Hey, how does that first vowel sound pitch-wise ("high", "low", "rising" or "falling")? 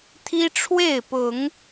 high